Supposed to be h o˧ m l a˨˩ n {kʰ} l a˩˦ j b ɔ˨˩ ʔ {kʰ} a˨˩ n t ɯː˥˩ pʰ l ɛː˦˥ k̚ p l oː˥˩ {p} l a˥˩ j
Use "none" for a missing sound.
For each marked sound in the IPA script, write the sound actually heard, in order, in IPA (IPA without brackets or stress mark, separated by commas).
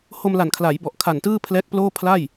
kʰ, kʰ, pʰ